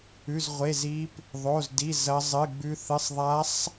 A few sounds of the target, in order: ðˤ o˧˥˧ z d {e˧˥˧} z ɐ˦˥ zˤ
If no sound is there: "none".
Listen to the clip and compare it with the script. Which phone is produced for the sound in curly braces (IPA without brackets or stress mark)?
i˧˥˧